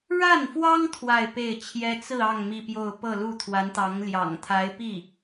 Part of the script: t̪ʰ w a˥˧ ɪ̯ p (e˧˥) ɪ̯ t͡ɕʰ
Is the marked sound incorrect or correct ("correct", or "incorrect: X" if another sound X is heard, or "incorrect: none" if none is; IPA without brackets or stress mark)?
incorrect: e˥˩